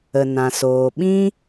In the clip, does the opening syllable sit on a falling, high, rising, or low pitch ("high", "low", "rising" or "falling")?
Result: low